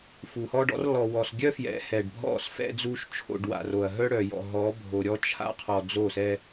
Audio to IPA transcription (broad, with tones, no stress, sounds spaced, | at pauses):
f u˨ h ɔ˦ ɖ ɔ̰˦ r l ɔ˨ w ɔ˨ s ɡʲ œ˦ f j ɛ̰˨˦ h ɛ˨ ɖ bʱ ɔ̰˦˨ s f ɛ̰˦ d͡z u˦ ʃ t͡ʃʰ o̰˦˨ ɖ w a̰˨ r o˨ ɐ̯ ɦ œ˦ ɽ œ˨ j ɔ̰˨ ɦ ɔ˨˦ bʱ o˨ ɾʲ ɔ˦ t͡ʃʰ a̰˦ qʰ ɔ˨ d͡z o˦˨ s ɛ˦